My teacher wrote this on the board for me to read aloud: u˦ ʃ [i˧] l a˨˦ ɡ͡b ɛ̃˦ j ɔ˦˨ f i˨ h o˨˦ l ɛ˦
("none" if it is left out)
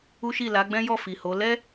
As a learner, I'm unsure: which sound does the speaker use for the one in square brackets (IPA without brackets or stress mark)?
i˦˨